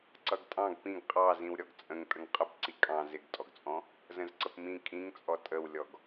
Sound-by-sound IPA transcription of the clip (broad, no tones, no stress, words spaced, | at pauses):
ǀʌɡtʼɑ̃ɡ pĩɡ qʼɑzĩw ɾʲɔɡt͡sʼə̃ŋ tʼəŋqʼəpǀi kʼɑ̃ zɪɡtʼɔɡt͡sʼɔ̃ | zə̃zǀəpmĩ kʼĩŋt͡sʼɔ tʼəwlʲɔɡ